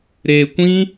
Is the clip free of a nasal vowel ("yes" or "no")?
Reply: no